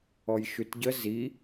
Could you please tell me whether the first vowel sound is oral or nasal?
oral